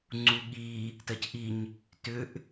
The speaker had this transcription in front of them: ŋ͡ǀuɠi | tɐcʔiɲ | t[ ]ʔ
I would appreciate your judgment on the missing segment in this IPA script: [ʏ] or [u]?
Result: ʏ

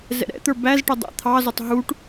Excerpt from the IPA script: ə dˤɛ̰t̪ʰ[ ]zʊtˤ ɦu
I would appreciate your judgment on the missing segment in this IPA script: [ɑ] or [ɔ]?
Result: ɑ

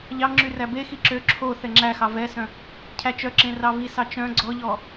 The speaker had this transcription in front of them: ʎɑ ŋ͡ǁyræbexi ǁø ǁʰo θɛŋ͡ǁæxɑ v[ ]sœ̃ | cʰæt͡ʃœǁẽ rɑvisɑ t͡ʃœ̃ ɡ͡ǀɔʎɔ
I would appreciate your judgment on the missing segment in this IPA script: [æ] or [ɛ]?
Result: ɛ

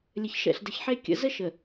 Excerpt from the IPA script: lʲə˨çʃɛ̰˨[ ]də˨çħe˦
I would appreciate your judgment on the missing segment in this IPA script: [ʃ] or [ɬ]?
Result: ɬ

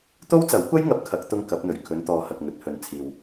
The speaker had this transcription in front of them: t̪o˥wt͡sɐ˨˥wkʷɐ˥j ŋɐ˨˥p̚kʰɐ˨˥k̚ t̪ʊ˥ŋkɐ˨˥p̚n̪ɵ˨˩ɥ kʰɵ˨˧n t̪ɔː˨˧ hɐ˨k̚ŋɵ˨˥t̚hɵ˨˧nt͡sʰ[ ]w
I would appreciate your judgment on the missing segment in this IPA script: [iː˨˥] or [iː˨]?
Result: iː˨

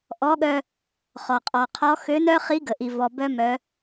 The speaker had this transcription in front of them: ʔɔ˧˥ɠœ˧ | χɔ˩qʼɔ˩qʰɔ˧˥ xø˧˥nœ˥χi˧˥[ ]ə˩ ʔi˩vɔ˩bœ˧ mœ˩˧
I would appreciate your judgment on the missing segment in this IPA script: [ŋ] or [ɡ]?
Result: ɡ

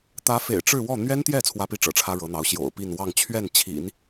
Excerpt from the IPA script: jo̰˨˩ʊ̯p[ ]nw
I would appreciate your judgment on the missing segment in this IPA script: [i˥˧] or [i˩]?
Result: i˥˧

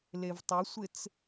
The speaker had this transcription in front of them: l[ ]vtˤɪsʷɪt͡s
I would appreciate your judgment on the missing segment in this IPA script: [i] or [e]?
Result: e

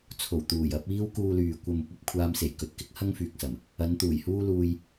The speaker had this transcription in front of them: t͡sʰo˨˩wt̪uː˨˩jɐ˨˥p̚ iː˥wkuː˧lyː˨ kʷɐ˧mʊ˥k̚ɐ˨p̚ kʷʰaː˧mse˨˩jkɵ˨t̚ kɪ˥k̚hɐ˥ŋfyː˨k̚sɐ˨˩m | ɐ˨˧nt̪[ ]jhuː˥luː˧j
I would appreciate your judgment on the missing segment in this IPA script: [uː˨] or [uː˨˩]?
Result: uː˨˩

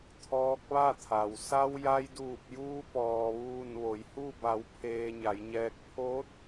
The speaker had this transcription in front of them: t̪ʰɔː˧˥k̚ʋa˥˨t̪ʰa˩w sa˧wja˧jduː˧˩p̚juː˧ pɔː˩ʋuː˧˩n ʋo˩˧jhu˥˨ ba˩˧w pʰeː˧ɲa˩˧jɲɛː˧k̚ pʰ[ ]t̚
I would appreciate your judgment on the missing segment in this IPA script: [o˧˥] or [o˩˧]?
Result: o˧˥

